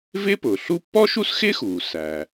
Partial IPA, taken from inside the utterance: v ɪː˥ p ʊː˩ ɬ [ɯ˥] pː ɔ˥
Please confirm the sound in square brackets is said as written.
no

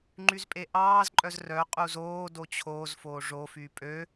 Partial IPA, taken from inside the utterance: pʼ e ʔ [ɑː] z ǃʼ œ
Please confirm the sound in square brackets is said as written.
yes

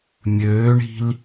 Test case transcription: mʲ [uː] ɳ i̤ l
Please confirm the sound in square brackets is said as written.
no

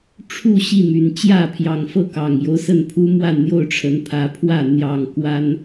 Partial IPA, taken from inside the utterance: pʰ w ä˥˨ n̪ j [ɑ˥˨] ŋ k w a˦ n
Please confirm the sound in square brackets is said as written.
yes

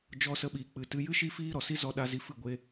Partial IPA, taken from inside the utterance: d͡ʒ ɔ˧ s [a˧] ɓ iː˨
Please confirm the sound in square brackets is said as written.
no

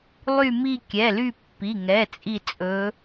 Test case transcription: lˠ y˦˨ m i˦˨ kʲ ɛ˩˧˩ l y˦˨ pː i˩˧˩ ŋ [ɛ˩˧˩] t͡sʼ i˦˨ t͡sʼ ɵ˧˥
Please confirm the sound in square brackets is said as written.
yes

